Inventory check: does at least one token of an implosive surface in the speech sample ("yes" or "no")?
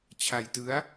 no